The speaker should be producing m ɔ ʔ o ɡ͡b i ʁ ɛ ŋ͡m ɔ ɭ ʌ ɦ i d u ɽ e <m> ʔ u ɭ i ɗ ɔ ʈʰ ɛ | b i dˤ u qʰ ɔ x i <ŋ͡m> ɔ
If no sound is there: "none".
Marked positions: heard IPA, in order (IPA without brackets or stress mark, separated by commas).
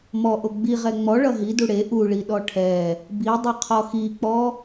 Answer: none, k͡p